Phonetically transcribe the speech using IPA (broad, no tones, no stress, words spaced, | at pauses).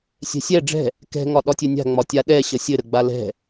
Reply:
sʲɛ̤sʲɛ ɖ͡ʐɛ̤ | kɛ̤ ŋɒɗɒtʲɘnʲa̤ ŋ͡mɒtʲaɗɛ ɕəsʲɘ ɾəɡ͡balɛ̤